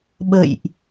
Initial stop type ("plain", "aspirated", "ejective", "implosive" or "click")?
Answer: implosive